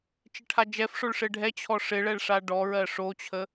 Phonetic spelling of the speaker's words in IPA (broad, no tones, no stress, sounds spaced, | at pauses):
t͡ʃ ɪ ʈʰ a d͡ʒ ɛ f ʂ o ɭ ʂ ɪ ɖʱ ɛ t͡ɕʰ ɔ ʂ ɪ ɭ ɛ ɭ ʂ a ɖ ɔ ɹ ɜ ʂ o t͡ɕʰ ə